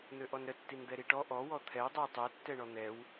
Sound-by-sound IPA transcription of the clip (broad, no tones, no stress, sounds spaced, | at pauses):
n̪ ø ʔ ɔ n ɾ ə tː i n d̪ ɛ ɾ i ʈ ɔ ʔ ɔ w ɔ t̪ʰ ɛ w dˤ ø w tˤ ø tː ɛ ɳ ɔ n̪ ɛ w